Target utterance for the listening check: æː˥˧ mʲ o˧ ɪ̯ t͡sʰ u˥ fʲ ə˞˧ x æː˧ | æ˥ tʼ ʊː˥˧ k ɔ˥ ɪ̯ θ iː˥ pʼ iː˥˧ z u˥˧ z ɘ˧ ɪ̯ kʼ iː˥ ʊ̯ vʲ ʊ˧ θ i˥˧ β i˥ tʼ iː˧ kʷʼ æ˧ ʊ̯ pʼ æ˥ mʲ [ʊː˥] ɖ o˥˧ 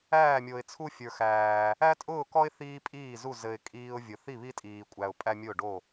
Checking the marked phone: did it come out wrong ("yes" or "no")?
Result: yes